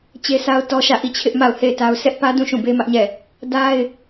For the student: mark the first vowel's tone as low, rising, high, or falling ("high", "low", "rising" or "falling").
high